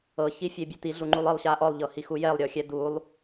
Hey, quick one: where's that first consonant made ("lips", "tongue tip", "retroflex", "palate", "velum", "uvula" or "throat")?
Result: palate